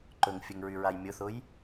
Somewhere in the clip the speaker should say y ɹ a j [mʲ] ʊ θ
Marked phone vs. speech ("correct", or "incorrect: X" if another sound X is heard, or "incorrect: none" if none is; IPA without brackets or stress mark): correct